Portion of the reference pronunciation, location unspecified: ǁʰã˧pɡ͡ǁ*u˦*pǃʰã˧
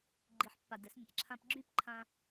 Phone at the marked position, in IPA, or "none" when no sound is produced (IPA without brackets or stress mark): y˦